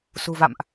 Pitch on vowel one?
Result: low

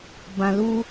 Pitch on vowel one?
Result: low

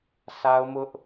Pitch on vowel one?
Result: high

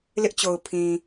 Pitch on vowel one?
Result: high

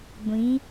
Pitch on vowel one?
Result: rising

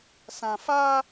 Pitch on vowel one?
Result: low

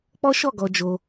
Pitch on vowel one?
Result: high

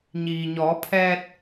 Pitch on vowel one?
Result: low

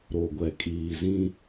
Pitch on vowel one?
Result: low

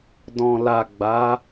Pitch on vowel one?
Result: low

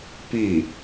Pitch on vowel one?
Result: falling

